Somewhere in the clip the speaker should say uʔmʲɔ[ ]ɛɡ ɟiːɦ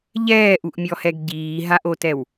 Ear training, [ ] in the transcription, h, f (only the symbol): h